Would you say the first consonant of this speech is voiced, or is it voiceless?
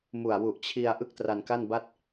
voiced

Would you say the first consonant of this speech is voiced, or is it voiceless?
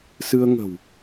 voiceless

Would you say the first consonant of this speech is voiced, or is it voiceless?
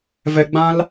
voiced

